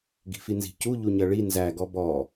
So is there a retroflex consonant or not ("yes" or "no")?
yes